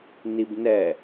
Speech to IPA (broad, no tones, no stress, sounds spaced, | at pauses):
n i b n ɛ